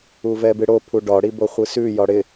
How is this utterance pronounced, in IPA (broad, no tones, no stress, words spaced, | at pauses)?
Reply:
uvɛbɨɽo pʰuɖɒ ɽiboχʷɨsʉ jɒɽɪ